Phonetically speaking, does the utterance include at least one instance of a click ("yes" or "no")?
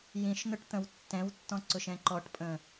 yes